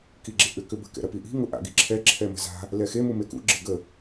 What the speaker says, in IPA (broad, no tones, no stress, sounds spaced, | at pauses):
k i ɡ͡ǁ ḛ ʔ ʏ k ʏ b ə̤ k ɛ̰ ɾ ɐ p i ʔ i̤ ŋ ʊ ʔ a̰ ɡ i ǁʰ ɛ ǁʰ ɛ m ə̤ z a̤ | l ɛ x e m u m e k ṵ ɡ͡ǁ ɪ ɡ ə